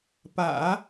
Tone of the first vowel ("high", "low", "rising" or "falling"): low